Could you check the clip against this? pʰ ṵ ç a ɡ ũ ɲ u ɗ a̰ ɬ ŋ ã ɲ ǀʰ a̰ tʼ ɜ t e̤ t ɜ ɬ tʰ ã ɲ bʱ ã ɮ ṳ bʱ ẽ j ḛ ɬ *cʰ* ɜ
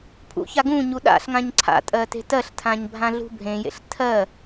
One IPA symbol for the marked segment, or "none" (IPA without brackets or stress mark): tʰ